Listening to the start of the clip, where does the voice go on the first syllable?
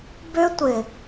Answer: high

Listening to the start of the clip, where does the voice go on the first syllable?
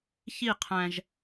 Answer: falling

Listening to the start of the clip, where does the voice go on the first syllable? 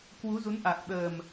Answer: rising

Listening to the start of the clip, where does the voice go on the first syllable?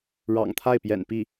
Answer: low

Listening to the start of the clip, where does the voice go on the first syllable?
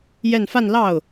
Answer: falling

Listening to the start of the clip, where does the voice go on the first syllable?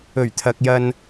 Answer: low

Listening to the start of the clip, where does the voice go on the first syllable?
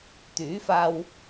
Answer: rising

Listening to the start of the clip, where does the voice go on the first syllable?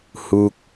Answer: falling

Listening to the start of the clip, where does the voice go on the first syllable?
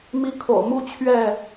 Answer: high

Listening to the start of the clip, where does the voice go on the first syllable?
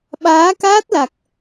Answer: rising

